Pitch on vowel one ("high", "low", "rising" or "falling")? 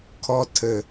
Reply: low